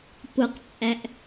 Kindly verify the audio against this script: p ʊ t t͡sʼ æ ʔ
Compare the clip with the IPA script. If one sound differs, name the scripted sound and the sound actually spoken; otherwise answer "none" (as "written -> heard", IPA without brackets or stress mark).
t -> q